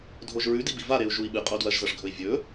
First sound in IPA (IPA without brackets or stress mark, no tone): dʱ